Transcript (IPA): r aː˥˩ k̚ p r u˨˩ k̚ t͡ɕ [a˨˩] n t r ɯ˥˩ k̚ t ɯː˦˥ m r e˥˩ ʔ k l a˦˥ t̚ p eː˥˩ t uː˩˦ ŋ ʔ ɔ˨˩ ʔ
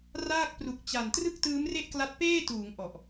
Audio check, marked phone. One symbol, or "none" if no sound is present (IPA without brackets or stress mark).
a˨˩